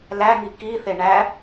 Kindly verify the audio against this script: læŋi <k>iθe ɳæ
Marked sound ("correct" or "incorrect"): correct